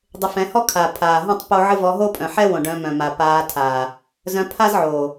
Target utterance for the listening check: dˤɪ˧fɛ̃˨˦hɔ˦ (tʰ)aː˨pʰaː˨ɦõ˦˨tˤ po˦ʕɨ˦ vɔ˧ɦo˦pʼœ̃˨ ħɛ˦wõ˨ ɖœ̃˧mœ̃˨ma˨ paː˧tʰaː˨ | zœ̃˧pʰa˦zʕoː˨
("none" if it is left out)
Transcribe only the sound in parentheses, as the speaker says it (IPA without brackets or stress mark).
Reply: kʰ